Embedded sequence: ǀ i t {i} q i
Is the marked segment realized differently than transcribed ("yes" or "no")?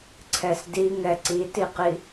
no